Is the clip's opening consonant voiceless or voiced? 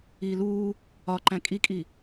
voiced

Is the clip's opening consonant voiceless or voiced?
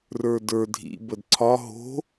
voiced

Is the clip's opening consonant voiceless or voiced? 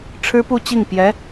voiceless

